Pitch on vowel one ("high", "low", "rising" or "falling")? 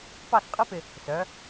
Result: falling